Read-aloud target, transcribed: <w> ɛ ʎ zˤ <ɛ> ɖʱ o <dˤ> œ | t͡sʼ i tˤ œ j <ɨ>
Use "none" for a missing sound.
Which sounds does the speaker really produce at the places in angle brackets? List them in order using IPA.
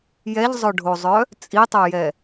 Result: j, œ, zˤ, ɛ

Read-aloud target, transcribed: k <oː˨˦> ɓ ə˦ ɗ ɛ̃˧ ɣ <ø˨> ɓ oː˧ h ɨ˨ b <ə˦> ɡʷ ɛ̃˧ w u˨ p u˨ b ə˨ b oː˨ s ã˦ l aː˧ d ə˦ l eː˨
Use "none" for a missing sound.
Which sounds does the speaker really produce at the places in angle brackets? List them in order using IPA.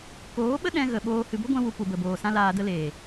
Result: oː˨˦, ə˨, ə˦

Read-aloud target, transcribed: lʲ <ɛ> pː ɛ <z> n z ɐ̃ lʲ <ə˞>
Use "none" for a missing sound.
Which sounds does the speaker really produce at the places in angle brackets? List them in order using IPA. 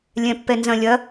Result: ɛ̃, none, ɐ

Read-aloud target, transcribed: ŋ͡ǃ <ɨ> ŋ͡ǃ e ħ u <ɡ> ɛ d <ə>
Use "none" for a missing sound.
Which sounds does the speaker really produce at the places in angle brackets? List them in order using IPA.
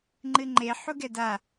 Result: ɨ, ɡ, a

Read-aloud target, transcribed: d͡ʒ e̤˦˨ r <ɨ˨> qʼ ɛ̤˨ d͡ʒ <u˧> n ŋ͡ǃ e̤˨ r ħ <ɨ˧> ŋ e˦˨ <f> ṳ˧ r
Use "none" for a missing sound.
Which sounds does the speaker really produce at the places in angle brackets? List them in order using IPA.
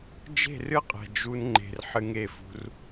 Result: ɨ˦, u˧, ɨ˧, f

